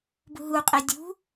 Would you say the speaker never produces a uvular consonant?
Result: no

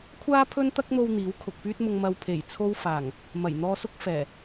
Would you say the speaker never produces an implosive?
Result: yes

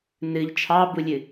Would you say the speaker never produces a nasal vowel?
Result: yes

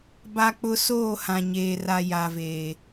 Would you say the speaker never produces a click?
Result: yes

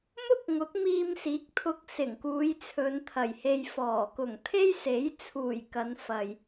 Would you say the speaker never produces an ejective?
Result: yes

